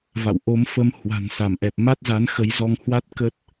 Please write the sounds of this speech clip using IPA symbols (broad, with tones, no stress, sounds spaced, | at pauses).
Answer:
v a̰˧˨ w ʔ o˨˦ m f ə˨˦ m h w a̤˨˩ n s a˧˩ m ʔ ɛ˨˩ p̚ m a˦˥ t̚ z a˨˦ n x ə˨˦ j z ɔ˧ ŋ h w a˦˥ t̚ k ə˦˥ t̚